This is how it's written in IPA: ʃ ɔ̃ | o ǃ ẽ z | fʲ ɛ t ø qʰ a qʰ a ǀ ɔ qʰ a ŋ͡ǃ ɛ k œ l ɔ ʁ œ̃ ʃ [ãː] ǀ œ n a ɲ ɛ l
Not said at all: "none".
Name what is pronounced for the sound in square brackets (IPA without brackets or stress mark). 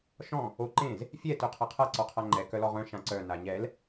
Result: ã